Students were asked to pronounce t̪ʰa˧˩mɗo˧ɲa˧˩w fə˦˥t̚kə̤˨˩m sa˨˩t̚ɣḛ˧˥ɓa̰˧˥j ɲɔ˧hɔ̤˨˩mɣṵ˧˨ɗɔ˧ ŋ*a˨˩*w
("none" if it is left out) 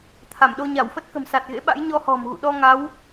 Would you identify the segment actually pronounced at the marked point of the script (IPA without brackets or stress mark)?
a˨˦